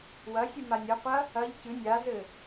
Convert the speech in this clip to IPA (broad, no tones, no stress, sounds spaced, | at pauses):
w ɐ sʲ ɨ m a nʲ ɐ qʷ ɐ | ɐ ʎ c ɨ nʲ a z ɘ